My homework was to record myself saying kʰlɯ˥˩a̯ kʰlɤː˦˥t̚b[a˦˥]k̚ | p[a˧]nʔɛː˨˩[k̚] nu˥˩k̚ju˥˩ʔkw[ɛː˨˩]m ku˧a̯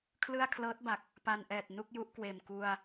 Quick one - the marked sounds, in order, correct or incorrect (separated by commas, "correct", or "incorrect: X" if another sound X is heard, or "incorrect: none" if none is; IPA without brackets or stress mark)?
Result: incorrect: a˨˩, correct, incorrect: t̚, incorrect: eː˨˩